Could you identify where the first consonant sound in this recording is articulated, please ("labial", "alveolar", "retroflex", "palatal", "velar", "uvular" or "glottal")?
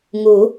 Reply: velar